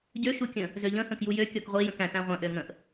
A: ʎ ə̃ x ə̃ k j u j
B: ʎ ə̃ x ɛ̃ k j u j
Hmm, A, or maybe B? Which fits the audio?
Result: A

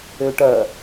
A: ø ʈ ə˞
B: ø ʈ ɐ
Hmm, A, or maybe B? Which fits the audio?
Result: B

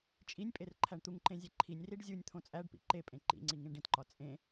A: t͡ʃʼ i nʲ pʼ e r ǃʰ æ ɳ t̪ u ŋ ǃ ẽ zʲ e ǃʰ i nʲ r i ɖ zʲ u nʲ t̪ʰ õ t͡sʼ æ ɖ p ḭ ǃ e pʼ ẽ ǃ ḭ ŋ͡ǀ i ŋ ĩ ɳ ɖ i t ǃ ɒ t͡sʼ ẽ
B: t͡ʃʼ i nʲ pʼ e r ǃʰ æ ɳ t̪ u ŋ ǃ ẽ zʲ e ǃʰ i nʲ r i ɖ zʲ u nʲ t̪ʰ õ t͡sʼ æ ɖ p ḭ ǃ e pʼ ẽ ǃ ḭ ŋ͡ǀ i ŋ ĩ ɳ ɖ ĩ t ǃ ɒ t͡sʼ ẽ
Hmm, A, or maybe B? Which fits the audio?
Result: B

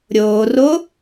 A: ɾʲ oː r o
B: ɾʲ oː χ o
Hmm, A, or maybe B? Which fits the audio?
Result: A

